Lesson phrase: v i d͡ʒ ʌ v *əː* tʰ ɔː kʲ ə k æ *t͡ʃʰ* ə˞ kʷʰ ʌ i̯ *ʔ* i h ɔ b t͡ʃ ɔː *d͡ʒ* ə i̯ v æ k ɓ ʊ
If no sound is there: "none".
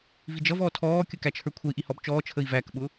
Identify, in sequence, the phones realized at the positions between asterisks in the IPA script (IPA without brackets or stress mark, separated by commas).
ɔː, t͡ʃʰ, ʔ, t͡ʃʰ